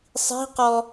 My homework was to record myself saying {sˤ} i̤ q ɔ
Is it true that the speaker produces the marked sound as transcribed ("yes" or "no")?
yes